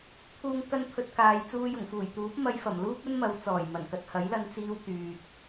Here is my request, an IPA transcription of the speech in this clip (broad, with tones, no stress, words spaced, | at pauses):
t̪ʰuː˨ŋkɐ˧n pʰɵ˧t̚kaː˨j t͡suː˧jʊ˨˩ŋfuː˨˩j t̪uː˨˥p̚mɐ˧jfɐ˨˩m luː˥p̚ɵ˥nmɐ˨˧w t͡sɔː˨˩jmɐ˨˩n kɐ˨t̚hɐ˨˥jlɐ˧n t͡siː˥wt̪yː˨t̚